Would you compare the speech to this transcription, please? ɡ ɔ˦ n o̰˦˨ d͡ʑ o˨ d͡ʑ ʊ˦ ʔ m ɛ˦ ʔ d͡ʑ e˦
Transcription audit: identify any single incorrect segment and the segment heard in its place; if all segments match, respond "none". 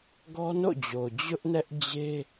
m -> n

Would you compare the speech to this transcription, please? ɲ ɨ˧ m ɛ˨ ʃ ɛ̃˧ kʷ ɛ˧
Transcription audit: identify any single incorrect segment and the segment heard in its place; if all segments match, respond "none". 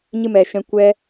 none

